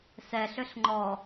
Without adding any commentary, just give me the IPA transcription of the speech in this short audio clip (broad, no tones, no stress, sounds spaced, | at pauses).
s ɛ ɬ ʏ ɬ ŋ͡ǃ ɔ